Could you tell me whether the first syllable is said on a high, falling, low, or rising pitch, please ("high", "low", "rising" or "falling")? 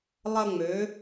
high